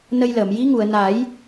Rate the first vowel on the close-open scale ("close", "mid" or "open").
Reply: mid